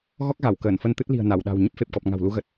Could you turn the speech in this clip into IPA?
ɣ ɔ˦˥ k̚ ɣ a˧˩ w k əː˧˩ n f ə˧ n t̪ ɨ˦˥ t̚ l i̤˨˩ ə̯ n a˧˩ w ɗ a̤˨˩ w ɲ ə˦˥ p̚ f e˨˩ p̚ k ɔ˨˩ p̚ ŋ a̤˨˩ w l u˨˦ ɣ ə˨˩ t̚

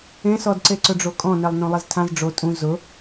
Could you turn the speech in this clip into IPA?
ẽ s ɔ d ǀ e ǀ ʊ ɖ͡ʐ o kʼ ɔ̃ n ɛ lˠ n õ lˠ i z tʰ ã z ɖ͡ʐ o tʼ ũ z ʊ

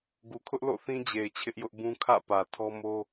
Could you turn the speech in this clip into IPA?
ɡ u˨ kʰ ʊ˦ ʔ l o̰˦˨ θ ĩ˦ d͡ʑ e˨ ɪ̯ t͡ɕʰ ɪ˦ ʔ j ʊ˦ ʔ b ũ˦ kʰ ä̰˦˨ p ä˨ tʰ ɔ˦ m o˦

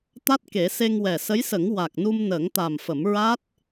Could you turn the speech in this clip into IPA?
t̪ a˦˥ t̚ k e˨˩˦ s e˧ ŋ w ɛ˨˩ s ə˧˥ j s ə˨˩˦ ŋ w a˨˩ k̚ n u˧ m n əː˨˩˦ ŋ t̪ a˨˩ m f ə˨˩˦ m ɹ aː˦˥ t̚

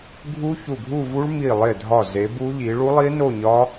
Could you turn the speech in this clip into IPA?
ɡʱ u˦˥ ç u˧˩ ɡʱ u˥˧ v u˦˥ ɭ m i˧˩ lˠ e˧˩ dʱ ɒ˧˩ z e˨˦ b u˦˥ ʎ i˨˦ ɭ u˦˥ lˠ i˦˥ n o˥˧ ɲ ɒ˦˥

